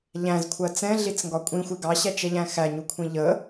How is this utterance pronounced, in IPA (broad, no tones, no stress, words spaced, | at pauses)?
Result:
ʎæ̃zkʷʰɜ t͡sɛ̃ɮit͡sŋɡɒ kʷʼĩxʷɪ ɡɑɕæt͡ʃɛʎæ̃ xæɲukʷʰĩ ʎə